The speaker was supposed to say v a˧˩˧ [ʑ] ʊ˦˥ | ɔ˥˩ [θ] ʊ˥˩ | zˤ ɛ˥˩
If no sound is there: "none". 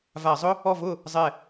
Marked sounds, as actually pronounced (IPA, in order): zˤ, v

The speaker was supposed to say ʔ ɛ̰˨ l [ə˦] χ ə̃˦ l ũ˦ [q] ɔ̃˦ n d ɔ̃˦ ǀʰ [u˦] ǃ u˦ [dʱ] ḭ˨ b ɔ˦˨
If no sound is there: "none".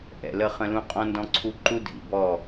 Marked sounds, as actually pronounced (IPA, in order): ə˦, qʼ, u˦, dʱ

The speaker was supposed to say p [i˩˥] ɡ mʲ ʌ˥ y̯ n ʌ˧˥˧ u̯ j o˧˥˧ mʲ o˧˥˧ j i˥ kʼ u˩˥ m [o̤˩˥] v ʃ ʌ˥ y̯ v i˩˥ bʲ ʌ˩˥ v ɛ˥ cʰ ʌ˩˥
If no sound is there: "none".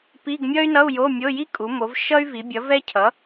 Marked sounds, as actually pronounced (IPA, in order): i˧˥˧, o˩˥

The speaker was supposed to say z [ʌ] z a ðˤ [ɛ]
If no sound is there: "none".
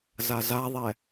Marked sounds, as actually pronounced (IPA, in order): a, ɛ

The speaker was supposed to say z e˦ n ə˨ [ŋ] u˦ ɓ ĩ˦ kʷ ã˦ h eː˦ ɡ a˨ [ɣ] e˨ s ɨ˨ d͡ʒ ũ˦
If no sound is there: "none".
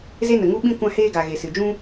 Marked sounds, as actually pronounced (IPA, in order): ŋ, ɣ

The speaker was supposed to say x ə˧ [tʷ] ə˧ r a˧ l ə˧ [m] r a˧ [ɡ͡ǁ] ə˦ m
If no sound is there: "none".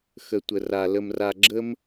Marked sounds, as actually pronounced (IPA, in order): tʷ, m, ɡ͡ǁ

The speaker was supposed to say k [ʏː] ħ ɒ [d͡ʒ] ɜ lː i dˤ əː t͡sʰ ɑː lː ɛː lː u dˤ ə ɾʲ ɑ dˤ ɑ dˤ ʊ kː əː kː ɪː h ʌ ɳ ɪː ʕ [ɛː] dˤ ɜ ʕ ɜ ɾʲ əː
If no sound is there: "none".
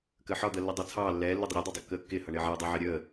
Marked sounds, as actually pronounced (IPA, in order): əː, d̪, əː

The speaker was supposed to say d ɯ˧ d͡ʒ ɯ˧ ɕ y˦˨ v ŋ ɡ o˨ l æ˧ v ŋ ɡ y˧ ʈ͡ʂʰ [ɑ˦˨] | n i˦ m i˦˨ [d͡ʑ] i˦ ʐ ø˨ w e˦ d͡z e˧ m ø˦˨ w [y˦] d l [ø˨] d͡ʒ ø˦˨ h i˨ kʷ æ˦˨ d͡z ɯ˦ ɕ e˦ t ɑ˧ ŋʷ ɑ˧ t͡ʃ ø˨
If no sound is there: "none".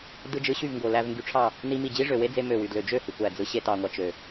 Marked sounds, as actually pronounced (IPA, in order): ɑ˦˨, d͡ʑ, y˧, ø˨

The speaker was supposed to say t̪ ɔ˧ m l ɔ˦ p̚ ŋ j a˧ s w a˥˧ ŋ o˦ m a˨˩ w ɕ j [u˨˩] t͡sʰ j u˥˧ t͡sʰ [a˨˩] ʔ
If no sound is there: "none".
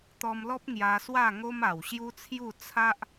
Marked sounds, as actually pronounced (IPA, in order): u˦, a˦

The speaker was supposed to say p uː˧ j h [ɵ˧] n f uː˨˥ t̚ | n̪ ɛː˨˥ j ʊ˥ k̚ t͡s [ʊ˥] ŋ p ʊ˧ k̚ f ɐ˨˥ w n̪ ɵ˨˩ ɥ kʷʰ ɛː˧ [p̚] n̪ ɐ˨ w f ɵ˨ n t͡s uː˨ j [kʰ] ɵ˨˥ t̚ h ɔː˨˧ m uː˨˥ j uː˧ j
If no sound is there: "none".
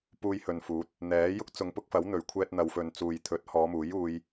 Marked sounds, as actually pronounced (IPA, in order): ɵ˨, ʊ˨˧, t̚, t̪ʰ

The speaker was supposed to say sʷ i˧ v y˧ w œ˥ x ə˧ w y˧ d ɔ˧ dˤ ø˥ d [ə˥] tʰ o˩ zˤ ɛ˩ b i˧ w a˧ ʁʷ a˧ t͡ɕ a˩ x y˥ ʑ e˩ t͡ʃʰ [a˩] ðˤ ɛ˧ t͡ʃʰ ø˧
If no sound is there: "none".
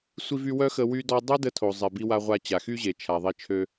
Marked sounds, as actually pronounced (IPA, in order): ə˥, a˩

